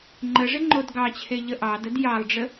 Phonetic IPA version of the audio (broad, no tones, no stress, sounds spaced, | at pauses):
ŋ͡ǃ ə ʐ ɪ ŋ͡ǃ o d ɡ ɑ t͡ɕʰ e ʎ ə ʔ ɑ d ə d j ɑ lˠ ɖ͡ʐ ə